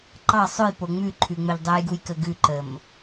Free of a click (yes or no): no